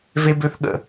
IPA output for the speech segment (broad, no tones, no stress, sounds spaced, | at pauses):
v e b ø θ ɠ ə̰